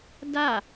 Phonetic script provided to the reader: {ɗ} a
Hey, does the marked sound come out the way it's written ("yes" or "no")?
no